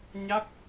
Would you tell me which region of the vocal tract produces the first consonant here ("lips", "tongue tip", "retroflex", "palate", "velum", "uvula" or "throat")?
palate